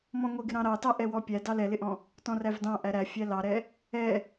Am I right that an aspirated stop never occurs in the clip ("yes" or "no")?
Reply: yes